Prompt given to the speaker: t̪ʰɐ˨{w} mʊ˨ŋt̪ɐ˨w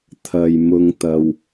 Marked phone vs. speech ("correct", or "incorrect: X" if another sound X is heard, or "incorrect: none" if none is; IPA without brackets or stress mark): incorrect: j